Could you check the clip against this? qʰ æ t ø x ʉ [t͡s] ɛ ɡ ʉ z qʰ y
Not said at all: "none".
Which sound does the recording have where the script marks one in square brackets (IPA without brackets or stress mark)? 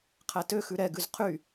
ɾ